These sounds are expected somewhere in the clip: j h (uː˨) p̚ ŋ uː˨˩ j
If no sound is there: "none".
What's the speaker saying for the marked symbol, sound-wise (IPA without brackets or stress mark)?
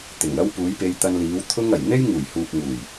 uː˨